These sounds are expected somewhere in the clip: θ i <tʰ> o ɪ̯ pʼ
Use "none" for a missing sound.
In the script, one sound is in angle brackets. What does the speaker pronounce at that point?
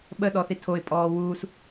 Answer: tʰ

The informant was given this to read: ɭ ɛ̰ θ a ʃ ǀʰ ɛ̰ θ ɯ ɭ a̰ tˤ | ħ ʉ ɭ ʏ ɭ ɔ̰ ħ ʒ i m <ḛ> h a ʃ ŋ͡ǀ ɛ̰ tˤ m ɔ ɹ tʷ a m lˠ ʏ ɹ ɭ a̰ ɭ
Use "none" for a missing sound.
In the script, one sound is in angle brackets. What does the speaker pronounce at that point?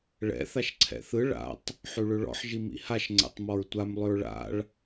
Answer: ḭ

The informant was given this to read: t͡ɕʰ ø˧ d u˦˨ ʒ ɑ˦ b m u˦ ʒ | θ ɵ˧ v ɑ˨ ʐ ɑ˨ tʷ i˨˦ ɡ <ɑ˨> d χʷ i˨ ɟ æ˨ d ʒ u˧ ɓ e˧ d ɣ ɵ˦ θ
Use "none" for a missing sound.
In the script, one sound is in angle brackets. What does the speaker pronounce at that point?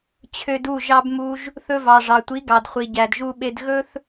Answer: ɑ˨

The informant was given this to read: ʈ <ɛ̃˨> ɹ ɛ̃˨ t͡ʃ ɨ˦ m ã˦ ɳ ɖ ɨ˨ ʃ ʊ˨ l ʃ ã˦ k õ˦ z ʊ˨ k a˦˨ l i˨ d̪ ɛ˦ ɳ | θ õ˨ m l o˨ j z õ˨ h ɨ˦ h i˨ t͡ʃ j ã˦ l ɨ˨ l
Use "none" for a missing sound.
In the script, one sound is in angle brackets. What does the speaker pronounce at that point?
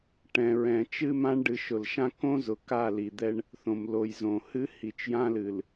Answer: ɛ̃˨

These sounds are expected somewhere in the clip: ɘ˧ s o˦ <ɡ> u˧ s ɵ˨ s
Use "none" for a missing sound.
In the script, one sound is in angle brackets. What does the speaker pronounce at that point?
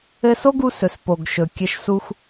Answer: ɡ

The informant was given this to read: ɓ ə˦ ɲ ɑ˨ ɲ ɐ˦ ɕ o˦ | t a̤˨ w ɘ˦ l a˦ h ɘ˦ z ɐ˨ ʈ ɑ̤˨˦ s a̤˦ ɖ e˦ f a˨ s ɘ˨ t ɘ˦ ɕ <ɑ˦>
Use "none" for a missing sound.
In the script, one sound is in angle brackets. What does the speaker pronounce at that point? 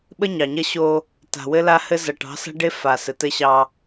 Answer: ɑ˦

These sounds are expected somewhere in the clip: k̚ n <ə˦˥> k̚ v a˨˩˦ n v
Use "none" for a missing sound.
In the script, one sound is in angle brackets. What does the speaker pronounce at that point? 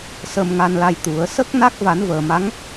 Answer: a˦˥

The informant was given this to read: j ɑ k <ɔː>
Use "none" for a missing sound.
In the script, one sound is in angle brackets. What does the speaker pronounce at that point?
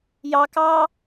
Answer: ɑː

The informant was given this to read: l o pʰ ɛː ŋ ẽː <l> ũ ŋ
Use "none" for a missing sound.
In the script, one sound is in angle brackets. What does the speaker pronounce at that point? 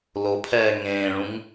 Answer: ɭ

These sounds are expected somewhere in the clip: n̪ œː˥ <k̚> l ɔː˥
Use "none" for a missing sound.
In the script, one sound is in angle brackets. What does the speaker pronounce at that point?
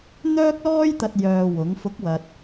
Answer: k̚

